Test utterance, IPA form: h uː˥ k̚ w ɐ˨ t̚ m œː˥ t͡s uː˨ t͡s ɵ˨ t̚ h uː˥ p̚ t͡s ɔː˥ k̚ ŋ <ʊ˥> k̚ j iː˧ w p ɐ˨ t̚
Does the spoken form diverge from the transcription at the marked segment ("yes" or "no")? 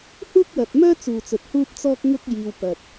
no